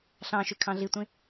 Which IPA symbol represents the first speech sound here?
ɬ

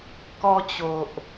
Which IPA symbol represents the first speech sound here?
k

